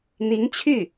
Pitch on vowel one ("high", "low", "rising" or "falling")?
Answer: rising